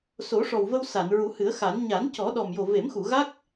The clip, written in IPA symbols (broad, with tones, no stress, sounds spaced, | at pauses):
s o˨˩˦ ʂ ɔ˨˩ w v ə˧ w s a˨˩˨ n ɹ u˨˩˦ h ɨ˨˩˦ ə̯ x a˨˩˦ n ɲ a˨˩˦ n c ɔ˨˩˦ ɗ ɔ˨˩ m j o˨˩ v e˨˩˦ m x u˨˩˨ ɣ a˦˥ k̚